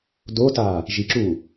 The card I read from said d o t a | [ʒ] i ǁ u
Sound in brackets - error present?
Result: no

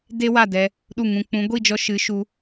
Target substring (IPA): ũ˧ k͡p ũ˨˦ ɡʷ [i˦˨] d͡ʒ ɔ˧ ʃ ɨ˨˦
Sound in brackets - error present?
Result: no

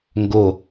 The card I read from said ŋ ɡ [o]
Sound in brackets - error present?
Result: no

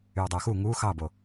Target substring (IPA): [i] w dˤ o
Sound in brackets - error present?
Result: yes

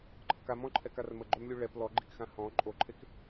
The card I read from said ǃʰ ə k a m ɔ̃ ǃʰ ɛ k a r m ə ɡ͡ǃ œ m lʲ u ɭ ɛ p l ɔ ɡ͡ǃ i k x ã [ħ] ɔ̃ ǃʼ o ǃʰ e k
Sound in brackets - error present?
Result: yes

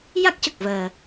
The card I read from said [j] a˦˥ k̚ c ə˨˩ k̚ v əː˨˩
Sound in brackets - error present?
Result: no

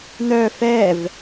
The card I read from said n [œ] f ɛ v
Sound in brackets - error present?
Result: no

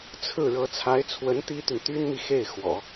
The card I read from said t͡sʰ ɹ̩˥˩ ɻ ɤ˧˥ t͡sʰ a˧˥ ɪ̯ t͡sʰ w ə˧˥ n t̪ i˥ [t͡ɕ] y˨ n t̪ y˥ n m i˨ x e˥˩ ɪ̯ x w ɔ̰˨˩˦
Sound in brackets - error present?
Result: yes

